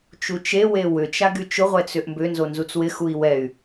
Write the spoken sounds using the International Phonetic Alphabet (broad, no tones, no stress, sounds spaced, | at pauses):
t͡ʃ u t͡ʃ e w e w ʏ t͡ʃ a ɡ y t͡ʃ ʊ ʁʷ ɛ t͡s ʏ ʔ m b ʏ n z o n z u t͡s w ɪ x u i̯ w ɛ y̯